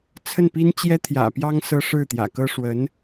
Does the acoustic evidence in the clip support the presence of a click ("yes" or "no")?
no